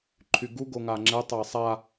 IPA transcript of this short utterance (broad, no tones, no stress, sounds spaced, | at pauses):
ǃʰ y ɡ u ɡ o ŋ a ŋ͡ǁ ɛ tˤ a sˤ a